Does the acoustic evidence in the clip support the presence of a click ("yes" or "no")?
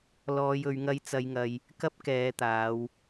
no